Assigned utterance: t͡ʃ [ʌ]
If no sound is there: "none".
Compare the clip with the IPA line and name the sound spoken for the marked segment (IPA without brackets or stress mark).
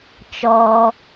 ɔ